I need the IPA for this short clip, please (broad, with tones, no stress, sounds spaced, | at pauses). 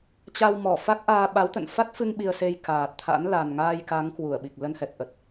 t͡ɕ a˧ w m ɔ˧˩ f a˦˥ k̚ ʔ aː˧ ɓ a˨˦ w t̪ ə̰˧˨ n f a˦˥ t̚ f ɨ˧ ŋ ɓ i˧ ə̯ s e˧ j k aː˨˩ t̚ t̪ʰ a̰˧˥ n l a˨˩ n ŋ aː˧ j k a˨˦ ŋ k w u˧˩ ə̯ ɓ i˨˩ k̚ l ə˧ n h ɛ˨˩ t̚ ʔ ə˨˩ t̚